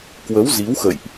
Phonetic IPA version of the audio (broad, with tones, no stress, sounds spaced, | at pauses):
k w ə˨˦ w z i˨˦ w x ə̰˧˨ j ʔ